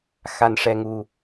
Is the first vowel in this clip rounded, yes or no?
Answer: no